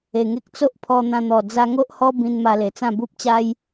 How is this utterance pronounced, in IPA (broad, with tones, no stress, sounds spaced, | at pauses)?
e˨˩ ŋ e˦ k̚ t͡s o˦ ʔ pʰ ɔ˧ n̪ ã˧ n̪ ɔ˨˩ d͡z a˧ ŋ o˦ ʔ h ɔ˦ b ĩ˧ n m a˧ l e˨˩ t͡s ã˥˧ b u˦ p̚ t͡ɕ a˦ j